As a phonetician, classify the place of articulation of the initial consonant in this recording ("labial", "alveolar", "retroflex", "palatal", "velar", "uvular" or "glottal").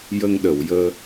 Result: palatal